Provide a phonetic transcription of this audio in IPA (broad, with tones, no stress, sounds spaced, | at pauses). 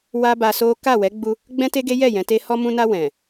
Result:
w a˦ b a˧ s o˦ k a˦˨ w ɛ˨˦ ɡ͡b u˧ | ɡ͡b ɛ̃˦ t e˦ ɡ e˦ j ɛ˦˨ j ɛ̃˨˦ t e˦ h ɔ˧ m ũ˧ n a˧ w ɛ̃˨